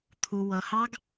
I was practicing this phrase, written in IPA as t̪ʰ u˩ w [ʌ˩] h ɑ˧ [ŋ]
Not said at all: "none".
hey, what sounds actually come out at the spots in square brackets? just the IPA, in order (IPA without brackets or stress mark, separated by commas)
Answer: ʌ˩, ɡ